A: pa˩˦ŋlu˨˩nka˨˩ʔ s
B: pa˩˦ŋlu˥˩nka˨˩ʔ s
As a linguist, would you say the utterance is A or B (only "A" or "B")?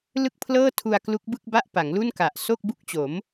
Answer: B